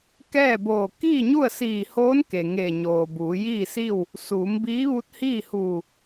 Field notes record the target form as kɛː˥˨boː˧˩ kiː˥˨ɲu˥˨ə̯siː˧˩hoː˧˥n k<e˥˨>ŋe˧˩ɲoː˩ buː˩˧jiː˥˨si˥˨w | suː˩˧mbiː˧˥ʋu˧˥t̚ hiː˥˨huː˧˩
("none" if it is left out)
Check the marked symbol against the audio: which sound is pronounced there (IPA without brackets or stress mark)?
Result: e˩